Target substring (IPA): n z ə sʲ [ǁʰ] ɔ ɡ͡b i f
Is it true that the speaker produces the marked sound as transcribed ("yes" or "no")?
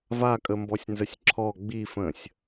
yes